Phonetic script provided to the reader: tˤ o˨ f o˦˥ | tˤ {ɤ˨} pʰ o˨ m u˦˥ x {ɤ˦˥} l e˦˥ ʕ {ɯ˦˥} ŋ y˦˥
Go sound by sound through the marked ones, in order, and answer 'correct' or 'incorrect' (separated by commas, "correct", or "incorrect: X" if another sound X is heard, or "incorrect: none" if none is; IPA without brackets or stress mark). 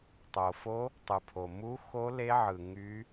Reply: incorrect: ɯ˨, incorrect: o˦˥, incorrect: ɯ˨